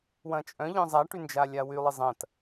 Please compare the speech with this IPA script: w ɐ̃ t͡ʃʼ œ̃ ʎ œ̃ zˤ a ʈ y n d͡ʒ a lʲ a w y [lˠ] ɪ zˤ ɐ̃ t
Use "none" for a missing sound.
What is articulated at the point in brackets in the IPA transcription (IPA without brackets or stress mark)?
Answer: lˠ